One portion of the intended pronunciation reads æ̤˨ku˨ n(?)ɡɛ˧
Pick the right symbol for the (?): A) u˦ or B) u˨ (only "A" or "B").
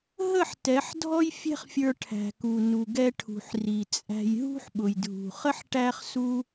B